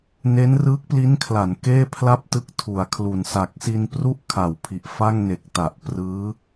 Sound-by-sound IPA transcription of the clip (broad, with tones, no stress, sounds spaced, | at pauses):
n e˦˥ n r ɯː˦˥ k̚ p l i˦˥ n kʰ l a˩˦ n k eː˥˩ pʰ l a˥˩ p̚ t ɯ˦˥ k̚ tʰ u˩˦ a̯ kʰ l u˨˩ n s a˨˩ k̚ s i˧ n p r u˥˩ ʔ kʰ a˨˩ w pʰ i˨˩ ʔ f a˥˩ ŋ n e˨˩ k̚ t a˨˩ ʔ p r ɯː˦˥